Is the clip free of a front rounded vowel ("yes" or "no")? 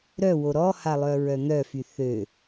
no